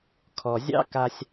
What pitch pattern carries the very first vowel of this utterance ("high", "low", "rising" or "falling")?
low